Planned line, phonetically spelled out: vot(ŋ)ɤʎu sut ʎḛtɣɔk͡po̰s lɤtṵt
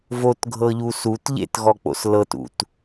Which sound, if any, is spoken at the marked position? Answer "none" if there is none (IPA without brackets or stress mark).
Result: ɡʱ